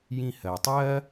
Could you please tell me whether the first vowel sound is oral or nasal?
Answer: nasal